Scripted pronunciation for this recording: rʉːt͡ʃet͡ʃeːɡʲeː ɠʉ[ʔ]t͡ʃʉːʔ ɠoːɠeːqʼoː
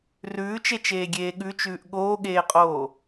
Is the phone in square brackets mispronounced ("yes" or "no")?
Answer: yes